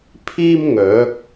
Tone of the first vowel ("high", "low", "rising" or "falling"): high